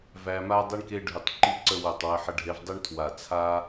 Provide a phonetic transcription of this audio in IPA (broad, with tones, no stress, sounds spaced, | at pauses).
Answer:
v æ˧ m a˥ dˤ i˧ ɳ k e˧ ɖʱ ʉ˧˩ tˤ ǃ i˥ ǀ ə˥˧ w o˧˩ tˤ w ə˧ ħ ə˧ ɖʱ e˧ v dˤ i˥ ɳ tʰ w a˧˩ t͡sʰ a˥